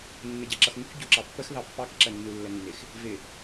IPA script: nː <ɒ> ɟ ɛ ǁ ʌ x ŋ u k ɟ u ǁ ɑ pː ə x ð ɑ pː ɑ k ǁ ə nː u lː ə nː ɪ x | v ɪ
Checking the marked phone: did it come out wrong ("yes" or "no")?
yes